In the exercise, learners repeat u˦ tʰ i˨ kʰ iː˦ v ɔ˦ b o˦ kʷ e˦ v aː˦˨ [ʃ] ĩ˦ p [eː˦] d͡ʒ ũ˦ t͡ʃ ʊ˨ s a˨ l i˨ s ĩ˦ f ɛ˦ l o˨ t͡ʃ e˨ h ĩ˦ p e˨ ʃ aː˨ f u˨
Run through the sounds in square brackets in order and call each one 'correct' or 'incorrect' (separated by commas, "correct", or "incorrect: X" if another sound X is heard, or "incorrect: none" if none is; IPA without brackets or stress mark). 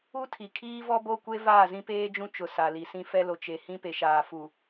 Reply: incorrect: z, correct